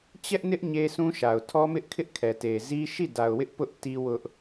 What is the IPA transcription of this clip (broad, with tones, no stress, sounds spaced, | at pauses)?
t͡ɕ ɛ˦ ʔ n ɪ˦ ʔ ɲ e˦ s ũ˦ ʃ a˨ ʊ̯ tʰ ɔ˦ m ɪ˦ ʔ kʰ ɪ˦ ʔ kʰ ɛ˨ t e˨ z i˦ ʃ i˦˨ d a˨ ʊ̯ w ɪ˦ ʔ p ʊ˦ ʔ t i˦ w ʊ˦ ʔ